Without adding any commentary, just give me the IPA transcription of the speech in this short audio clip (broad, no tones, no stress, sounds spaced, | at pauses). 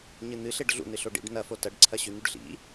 ɲ ɨ n̪ ɨ ɬ e ɖ ɮ ṵ n ɨ ɬ o ɖ ḭ ɖ n ɐ f o t ɐ ɖ ǀʰ ɐ ɕ ʉ n̪ ʉ ɖ ɬ ḭ